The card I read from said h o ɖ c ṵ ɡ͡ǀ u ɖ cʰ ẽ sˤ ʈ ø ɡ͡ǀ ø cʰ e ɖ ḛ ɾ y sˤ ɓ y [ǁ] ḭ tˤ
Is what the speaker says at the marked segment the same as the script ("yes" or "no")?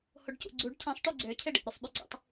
no